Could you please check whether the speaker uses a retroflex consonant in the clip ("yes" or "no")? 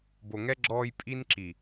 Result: no